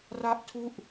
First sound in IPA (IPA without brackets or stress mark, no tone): r